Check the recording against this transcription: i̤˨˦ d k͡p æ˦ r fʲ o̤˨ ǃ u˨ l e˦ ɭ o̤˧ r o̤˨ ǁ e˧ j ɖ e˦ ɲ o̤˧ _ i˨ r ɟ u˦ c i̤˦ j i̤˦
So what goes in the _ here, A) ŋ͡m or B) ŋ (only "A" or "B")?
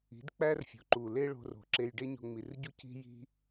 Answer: A